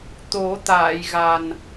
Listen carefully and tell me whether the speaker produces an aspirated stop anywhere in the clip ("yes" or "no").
no